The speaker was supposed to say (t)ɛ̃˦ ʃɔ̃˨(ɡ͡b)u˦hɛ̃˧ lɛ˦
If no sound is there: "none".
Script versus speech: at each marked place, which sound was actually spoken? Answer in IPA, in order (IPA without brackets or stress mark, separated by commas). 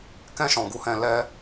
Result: k, ɡ